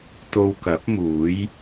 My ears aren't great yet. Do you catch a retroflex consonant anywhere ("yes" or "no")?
no